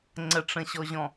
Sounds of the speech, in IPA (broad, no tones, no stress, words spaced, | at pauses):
ŋ͡ǀəʈ͡ʂə̃ɕɔʑɔ̃